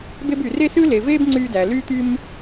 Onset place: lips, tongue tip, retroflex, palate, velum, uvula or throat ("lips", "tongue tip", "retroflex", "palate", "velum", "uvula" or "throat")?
lips